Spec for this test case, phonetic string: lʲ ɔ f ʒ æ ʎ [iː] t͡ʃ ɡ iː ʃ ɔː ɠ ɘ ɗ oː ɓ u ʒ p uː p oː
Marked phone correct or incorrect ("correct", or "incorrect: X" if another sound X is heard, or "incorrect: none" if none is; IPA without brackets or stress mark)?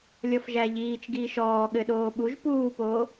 correct